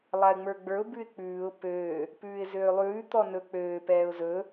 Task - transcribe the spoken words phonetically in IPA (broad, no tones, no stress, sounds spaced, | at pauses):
lˠ a ɪ̯ ŋ͡m ə˞ ɡ͡b ə˞ ʊ̯ b ʉ ɪ̯ k͡p ʉː ʊ̯ p øː | p ʉː ɪ̯ z øː lˠ ʉː t̪ ɔ n ɵ k͡p øː p ɛː ʊ̯ z ɵ